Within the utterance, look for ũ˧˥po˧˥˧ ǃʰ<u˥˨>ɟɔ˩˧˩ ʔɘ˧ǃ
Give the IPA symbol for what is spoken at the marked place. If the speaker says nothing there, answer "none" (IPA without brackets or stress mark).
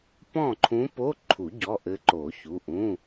u˨˩˦